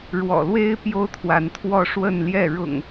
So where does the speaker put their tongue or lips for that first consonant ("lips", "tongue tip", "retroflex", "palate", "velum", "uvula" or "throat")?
retroflex